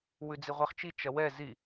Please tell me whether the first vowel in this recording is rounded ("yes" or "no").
yes